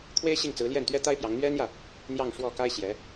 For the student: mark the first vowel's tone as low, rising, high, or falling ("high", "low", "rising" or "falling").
high